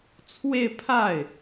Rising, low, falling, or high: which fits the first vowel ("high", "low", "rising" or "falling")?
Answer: falling